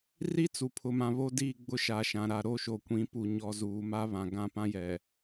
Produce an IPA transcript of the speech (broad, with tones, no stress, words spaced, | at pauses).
ri˦t͡su˨pʰʊ˨mã˨ βo˦diː˦˨ ɡ͡bʊ˦ʃa˨ʃã˨ ɾa˨ɾo˦˨ʃo˨kʷĩ˨˦ pu˨ɲɔ˨ zuː˨ma˦ βã˨ ɡã˦˨pã˦jɛ˨